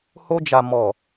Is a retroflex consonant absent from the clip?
yes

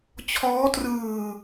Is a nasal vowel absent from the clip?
yes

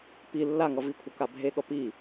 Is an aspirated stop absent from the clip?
no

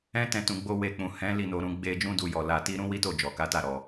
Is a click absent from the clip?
yes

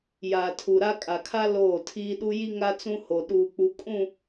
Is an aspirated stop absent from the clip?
no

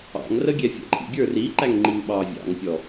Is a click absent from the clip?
no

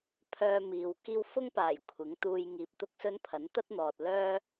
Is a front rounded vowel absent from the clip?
no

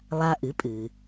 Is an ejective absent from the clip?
no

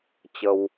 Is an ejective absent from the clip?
yes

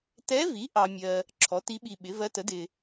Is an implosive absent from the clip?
no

